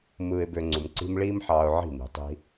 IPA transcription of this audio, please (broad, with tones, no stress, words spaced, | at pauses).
mɯː˧ɪ̯bø˧ŋ͡ǀu˨mǀi̤˦m ɭiː˦mħɑː˧ʊ̯ ʕi̤˦˨mi̤˨ tˤi̤˦